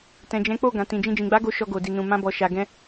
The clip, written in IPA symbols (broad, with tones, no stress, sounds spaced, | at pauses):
t ɛ̃˨ d͡ʒ ɛ̃˨˦ k͡p o˦˨ ɡ ã˨ t ĩ˨ d͡ʒ ĩ˧ d͡ʒ ĩ˨ ɡ͡b a˨˦ ɡ o˦ ʃ ɔ˧ ɡ o˨ d i˨ n ũ˨ m ã˧ b ɔ˨ ʃ a˨ ɡ ɛ̃˧